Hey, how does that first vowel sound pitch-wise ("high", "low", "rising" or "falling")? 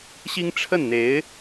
high